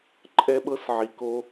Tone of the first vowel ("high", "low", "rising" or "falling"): high